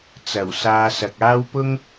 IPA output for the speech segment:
t͡s ɐ˨˩ w s aː˧ s ɐ˨ k̚ aː˥ w p ʊ˥ ŋ

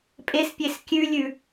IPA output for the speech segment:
pʼ e s pʲ e s kʲ ʉ lʲ ʉ

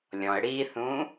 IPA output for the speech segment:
lʲ ɔ̃ ə̯ ɽ i θ ũ

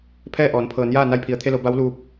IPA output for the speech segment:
pʰ ɛː˥˨ ʔ ɔː˩˧ n pʰ ɤː˩˧ n j aː˥˨ n a˧ j pʰ i˩ ə̯ t̪ʰ e˧ l o˩˧ b a˧˥ w l uː˧ p̚

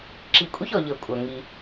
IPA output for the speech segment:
ǁ i˨ kʷʼ i˦ ç ɔ˨ ʎ ɤ˨ kʷʼ ɜ˨ ŋ i˦

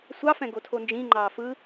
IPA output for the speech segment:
sʷ ɑ f ɛ̃ ɡ o tʰ o n d͡ʒ ĩ ŋ͡ǃ ɑː f ɯ

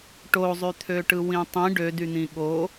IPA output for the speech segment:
ʈ o zˤ y t̪ʰ ø ʈ ɯ w ĩ tˤ ĩ ɖ ø d y n̪ ĩ ɠ o

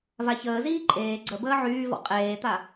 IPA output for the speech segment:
v a ç əː z iː ǃʼ eː ɡ͡ǀ ə b əː ʕ yː v ɔ̰ qʼ eː t̪ a

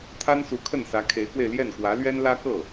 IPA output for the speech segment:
t̪ʰ a˥ n s u˧˥ kʰ ə˥˩ n s ä˧˥ kʰ e˧˥ ɪ̯ k w e˧ ɪ̯ l j ɛ˥˩ n k w ä˧˥ l ɥ ɛ˥ n l ä˥ k ɤ˥˩

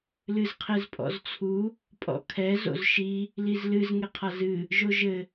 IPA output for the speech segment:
l ɨ z qʰ e z pʼ ɔ̰ z t͡sʰ u | pʼ ɔ̰ kʰ ɛ z o̰ z ʃ i | l i z l ɨ z ŋ e qʰ a z ɨ | ʒ o ʒ ɘ

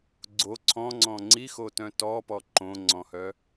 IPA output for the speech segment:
ɡ͡ǀ o ǀʰ ɔ̃ ŋ͡ǀ ɔ̃ ŋ͡ǀ i x o t œ̃ t ɔ p ɔ ǃ õ ŋ͡ǀ ɔ̃ h œ

